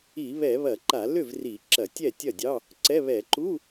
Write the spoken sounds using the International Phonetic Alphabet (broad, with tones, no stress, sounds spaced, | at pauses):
i˧˩˧ β ɛ˧˩˧ β ɐ˧˩˧ ǃ a˧˩˧ l ʏ˥˩ v r i˧˩˧ ǁ ɐ˧˩˧ tʲ ɛ˥˩ tʲ ɐ˥˩ dʲ ɑ˧˥˧ | ǀ ɛ˧˥˧ β ɛ˧˩˧ ǃ u˧˥˧